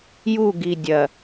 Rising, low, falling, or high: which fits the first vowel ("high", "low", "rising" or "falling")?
falling